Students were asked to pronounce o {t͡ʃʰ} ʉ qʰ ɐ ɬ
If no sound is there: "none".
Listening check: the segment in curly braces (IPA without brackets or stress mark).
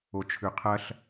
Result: t͡ʃʰ